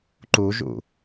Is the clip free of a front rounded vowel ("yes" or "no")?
yes